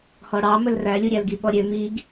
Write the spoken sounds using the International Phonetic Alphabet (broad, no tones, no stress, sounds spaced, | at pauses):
h ɔ ɽ ɑ m ɵ l r æ lʲ u ɾʲ æ l ɡ i ɓ ɔ ɾʲ ø m i ɡ